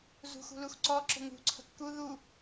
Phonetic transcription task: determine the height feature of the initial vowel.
high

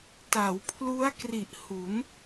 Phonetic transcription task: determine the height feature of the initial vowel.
low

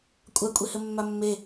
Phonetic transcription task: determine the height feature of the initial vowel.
low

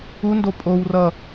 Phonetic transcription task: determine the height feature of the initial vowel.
high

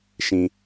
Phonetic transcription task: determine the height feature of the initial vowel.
high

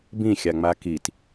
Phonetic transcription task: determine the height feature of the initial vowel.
high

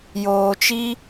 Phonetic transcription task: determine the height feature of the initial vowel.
mid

